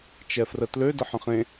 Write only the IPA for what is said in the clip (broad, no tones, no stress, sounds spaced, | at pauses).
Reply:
t͡ʃ ɛ f r ə t l ø d ə ħ ə̃ χ ẽ